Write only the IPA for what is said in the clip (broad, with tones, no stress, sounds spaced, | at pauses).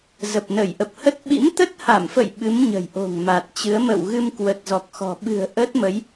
z ə˨˩ p̚ n ə˧˩ j ʔ ə˨˩ p̚ h ə˦˥ t̚ ɓ ḭ˧˥ m t̪ ə˦˥ t̚ h a˧˩ m f ə̰˧˨ j ɓ ɨ˨˦ m ɲ ə̤˨˩ j ʔ o̤˨˩ ŋ m a˨˩ t̚ t͡ɕ ɨ˨˦ ə̯ m ə̰˧˨ w ɣ ɨ˧ m k w ə˨˩ t̚ z ɔ˨˩ k̚ x ɔ̤˨˩ ɓ ɨ̤˨˩ ə̯ ʔ ə˦˥ t̚ m ə˨˦ j